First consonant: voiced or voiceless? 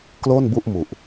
voiceless